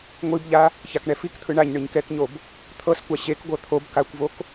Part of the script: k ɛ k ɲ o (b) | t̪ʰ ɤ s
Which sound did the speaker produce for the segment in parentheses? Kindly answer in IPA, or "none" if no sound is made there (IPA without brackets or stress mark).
b